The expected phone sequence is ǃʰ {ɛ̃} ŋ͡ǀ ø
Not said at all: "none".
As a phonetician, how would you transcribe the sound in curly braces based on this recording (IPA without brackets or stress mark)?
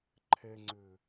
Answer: ɛ